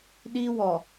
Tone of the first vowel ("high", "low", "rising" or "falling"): high